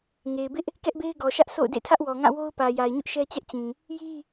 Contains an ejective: no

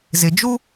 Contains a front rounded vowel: no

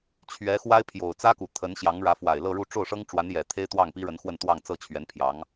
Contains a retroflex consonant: yes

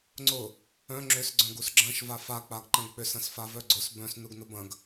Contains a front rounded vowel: yes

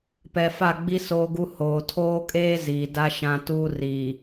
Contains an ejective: yes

